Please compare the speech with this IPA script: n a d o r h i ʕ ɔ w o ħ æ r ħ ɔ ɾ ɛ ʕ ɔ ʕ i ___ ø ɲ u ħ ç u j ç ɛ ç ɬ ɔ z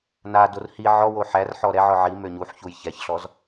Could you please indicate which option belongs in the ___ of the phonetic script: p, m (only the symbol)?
m